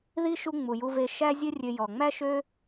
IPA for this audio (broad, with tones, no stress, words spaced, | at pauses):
ði˥ʃu˦ ŋ͡mu˩ju˨ve˨ ʃæ˦zʲɘ˦ rʲø˨jɔ˩ŋ͡mæ˦ ʃø˥